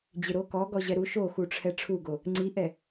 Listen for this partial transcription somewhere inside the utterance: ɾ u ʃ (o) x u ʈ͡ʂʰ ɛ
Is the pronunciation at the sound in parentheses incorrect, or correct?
correct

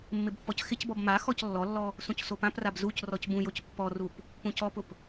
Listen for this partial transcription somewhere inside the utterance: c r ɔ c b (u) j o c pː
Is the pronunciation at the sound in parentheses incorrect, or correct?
incorrect: ũ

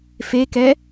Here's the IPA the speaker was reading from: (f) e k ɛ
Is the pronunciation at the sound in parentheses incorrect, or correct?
correct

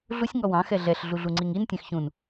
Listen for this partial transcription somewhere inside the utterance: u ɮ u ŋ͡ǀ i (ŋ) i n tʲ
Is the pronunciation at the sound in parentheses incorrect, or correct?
correct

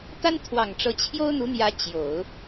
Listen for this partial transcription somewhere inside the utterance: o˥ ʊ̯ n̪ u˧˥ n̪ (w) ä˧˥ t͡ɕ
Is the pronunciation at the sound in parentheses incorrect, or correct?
incorrect: j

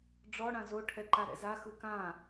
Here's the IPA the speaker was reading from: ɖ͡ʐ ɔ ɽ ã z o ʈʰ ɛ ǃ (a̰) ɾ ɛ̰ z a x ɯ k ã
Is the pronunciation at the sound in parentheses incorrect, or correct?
incorrect: a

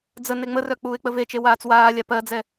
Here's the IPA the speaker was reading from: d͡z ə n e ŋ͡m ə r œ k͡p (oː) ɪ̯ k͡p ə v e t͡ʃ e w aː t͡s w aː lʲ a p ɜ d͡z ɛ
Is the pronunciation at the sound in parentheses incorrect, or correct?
incorrect: uː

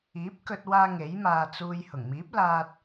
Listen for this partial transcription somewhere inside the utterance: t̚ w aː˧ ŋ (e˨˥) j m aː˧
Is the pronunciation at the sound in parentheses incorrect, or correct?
correct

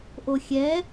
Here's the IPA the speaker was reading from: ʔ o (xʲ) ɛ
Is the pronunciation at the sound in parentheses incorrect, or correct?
correct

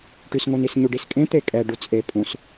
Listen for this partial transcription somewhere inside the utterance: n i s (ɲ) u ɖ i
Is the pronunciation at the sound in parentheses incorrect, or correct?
correct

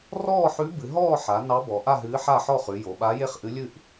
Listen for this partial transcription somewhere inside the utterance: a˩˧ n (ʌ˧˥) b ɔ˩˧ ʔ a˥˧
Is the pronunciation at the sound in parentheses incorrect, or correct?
incorrect: ɑ˧˥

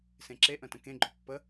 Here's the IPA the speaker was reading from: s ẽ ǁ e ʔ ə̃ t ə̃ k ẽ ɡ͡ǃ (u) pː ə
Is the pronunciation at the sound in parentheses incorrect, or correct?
incorrect: o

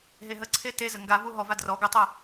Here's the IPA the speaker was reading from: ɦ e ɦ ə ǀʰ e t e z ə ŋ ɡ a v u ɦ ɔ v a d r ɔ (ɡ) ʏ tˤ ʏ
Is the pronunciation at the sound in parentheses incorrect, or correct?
correct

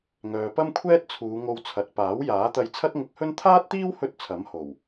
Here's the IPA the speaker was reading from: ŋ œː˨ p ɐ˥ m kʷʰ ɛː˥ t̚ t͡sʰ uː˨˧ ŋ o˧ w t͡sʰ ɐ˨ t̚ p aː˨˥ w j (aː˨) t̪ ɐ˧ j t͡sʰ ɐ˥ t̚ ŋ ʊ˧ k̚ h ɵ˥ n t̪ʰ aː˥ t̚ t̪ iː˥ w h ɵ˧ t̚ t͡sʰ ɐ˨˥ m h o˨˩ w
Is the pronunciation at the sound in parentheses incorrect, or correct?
incorrect: aː˨˥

